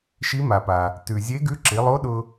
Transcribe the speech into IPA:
ʃ i˧˥ m a˩ p a˩ | t ʉ˩ zʲ e˧˥ ɡ ʉ˧˥ ǁ i˩˧ lˠ o˧˥ ɗ ʊ˧

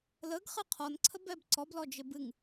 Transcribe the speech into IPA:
l ə ɡ χ ɨ qʰ ɔ n ǀʰ ə b ɛ b ǀ ɔ b l ɔ d͡ʒ ɪ b ɨ ŋ

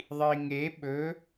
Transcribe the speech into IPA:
ðˤ i ŋ e ɓ ɵ

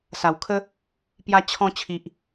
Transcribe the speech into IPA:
s a˨˩ w kʰ ə˦ | p j a˧ t͡ɕʰ ɔ̃˧ t͡ɕʰ i˨ ʔ

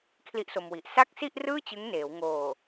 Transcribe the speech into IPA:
kʰ l i˦˥ ʔ s o˧ m w i˨˩ ʔ s a˥˩ k̚ s i˥˩ ʔ r ɯː˥˩ t͡ɕ ɯ˦˥ ŋ n eː˩˦ w ŋ oː˨˩

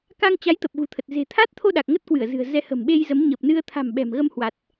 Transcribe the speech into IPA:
k a˧ ŋ t͡ɕ a˨˦ j t̪ ə˨˩ p̚ ɣ ṳ˨˩ t̪ʰ ə˨˩ t̚ z e̤˨˩ t̪ʰ a˦˥ t̚ t̪ʰ o˧ ɗ a˨˩ k̚ ŋ ə˦˥ t̚ k w ɨ˧˩ ə̯ z ɨ̤˨˩ ə̯ z ɛ˧ h ə̤˨˩ m ɓ e˧ j z ə˨˦ m ɲ ə˨˩ p̚ n ɨ˧ ə̯ t̪ʰ a̤˨˩ m ɓ ɛ̤˨˩ m ɣ ə˧ m h w a˨˩ t̚

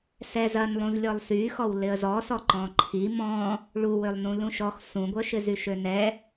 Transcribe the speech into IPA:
s ɛ z ɐ n lˠ ũ z lʲ ɔ lˠ s y x ɔ w l ɪ ə̯ z ɔ s ɔ ǃ ɔ̃ ǃʰ i m ɔ̃ | ɭ u w ø lˠ n ũ l ũ ʃ ɔ x s ũ ɡʷ œ ʃ ɪ z y ʃ ø n ɛ

